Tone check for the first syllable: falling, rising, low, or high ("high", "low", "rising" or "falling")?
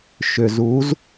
low